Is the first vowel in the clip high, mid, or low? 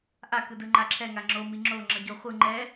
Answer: low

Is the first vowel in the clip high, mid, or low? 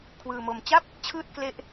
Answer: high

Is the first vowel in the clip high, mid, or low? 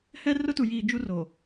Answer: mid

